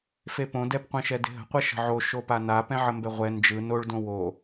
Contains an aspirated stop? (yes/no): no